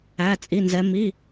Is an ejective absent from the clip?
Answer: no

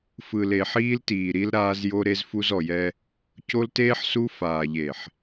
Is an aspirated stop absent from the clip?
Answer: yes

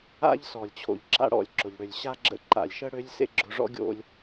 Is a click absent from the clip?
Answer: no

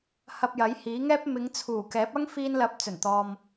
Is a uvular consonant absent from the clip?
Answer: yes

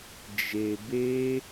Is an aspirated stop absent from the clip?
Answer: yes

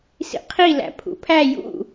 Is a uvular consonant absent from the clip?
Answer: no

